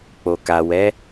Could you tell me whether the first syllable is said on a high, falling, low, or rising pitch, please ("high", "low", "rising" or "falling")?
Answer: low